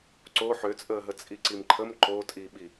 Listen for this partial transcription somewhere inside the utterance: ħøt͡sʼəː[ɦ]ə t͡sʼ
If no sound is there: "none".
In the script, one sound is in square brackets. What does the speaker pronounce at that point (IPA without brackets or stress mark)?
ɦ